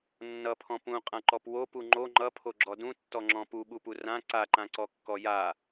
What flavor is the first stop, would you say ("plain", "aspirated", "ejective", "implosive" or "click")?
aspirated